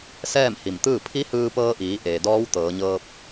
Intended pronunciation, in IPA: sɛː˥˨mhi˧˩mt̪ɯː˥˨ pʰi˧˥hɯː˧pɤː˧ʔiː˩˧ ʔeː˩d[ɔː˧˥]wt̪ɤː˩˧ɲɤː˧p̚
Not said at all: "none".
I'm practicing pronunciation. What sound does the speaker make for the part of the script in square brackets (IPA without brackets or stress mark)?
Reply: ɔː˧˥